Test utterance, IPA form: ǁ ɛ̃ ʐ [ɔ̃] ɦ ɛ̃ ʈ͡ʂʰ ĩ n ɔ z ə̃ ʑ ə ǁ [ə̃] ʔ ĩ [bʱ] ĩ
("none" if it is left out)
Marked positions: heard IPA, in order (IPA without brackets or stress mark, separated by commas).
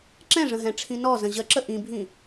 ə̃, ə, bʱ